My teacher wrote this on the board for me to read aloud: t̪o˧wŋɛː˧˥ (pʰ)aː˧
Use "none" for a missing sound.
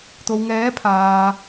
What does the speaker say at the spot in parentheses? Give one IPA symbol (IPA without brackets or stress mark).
pʰ